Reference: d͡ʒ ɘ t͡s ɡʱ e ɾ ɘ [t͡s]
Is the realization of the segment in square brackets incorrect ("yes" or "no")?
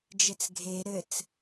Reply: no